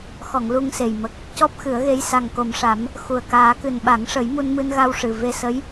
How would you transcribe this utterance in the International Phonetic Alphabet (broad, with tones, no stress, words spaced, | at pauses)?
xɔ˨˩˨ŋ lu˧ŋse˨˩j mə˨˩k̚ | cɔ˦˥p̚xɨ˨˩˦ə̯ɣe˧˥j sa˨˩ŋko˨˩mʂa˨˩˦m | xu˨˩ə̯ kaː˨˩˦kɨ˨˩nɓa˨˩˦ŋʂə˨˩˦j mu˧nmɨ˧nɣa˧w ʂɨ˨˩ ve˧ sə˧˥j